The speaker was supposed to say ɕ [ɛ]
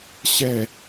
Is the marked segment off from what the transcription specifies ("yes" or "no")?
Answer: no